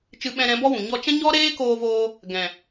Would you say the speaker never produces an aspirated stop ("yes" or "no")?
yes